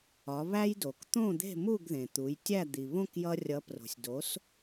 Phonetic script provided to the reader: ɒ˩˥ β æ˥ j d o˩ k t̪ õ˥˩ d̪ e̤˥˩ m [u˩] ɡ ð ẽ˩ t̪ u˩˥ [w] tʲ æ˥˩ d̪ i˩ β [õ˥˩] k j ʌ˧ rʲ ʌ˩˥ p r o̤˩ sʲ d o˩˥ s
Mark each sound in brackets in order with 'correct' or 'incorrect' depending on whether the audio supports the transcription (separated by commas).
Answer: incorrect, incorrect, correct